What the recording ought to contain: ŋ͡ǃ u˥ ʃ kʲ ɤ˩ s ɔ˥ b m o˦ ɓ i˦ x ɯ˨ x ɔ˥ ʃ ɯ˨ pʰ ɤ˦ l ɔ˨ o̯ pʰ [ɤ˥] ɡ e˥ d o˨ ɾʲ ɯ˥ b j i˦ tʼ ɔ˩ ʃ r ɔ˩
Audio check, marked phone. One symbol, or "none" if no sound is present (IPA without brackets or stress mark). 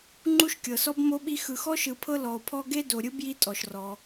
ɔ˥